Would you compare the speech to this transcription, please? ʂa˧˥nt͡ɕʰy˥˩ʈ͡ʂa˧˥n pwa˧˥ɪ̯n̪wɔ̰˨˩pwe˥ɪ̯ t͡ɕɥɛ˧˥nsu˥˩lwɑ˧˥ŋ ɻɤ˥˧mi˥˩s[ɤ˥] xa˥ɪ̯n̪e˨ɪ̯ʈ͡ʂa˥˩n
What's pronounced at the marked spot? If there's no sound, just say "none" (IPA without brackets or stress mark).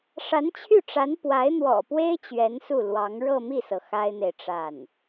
ɤ˩